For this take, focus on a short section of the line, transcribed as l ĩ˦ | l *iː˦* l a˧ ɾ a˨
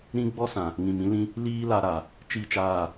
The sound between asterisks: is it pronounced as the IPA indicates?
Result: yes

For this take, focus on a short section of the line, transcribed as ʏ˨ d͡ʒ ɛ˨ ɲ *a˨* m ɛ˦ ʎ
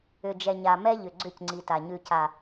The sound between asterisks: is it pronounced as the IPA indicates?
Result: yes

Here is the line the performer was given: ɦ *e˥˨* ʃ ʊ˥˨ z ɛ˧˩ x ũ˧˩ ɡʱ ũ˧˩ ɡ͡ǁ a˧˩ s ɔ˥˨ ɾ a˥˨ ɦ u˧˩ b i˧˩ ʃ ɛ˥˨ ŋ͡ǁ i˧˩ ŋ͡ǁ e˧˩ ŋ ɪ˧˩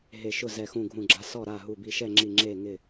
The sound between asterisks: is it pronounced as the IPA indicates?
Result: no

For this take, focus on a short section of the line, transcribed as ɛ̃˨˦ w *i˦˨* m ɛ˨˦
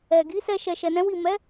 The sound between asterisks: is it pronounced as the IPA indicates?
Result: yes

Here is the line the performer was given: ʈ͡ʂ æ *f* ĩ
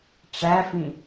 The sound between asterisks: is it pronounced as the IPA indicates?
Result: yes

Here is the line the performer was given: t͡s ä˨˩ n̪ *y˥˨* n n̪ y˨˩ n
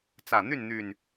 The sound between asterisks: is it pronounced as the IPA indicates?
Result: yes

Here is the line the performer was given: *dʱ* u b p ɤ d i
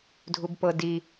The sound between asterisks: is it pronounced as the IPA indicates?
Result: yes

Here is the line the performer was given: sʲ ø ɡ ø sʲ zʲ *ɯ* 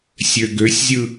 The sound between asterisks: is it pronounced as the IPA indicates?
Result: yes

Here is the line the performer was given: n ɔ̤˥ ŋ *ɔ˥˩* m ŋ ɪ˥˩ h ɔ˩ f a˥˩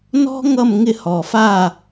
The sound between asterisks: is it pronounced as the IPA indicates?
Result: no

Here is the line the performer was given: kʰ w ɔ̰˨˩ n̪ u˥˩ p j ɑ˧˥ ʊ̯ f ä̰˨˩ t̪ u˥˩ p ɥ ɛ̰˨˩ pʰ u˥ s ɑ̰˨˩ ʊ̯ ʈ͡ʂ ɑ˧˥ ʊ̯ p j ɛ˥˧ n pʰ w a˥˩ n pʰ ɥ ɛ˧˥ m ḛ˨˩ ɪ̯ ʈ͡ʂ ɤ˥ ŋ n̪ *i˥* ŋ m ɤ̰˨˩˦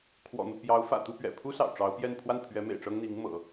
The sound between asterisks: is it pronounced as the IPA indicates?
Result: no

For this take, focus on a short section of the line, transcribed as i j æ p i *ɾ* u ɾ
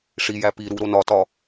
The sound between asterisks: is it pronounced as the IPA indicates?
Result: yes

